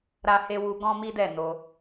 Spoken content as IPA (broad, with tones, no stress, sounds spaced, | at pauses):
ɾ a˦ h e˦ w u˦ ɡ ɔ̃˦ m i˦ d ɛ˦˨ n o˧